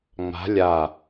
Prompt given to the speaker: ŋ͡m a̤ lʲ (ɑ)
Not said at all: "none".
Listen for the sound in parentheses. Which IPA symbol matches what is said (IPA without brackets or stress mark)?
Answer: a